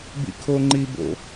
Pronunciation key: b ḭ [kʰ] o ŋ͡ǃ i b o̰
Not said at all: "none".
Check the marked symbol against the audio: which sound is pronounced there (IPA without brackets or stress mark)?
kʰ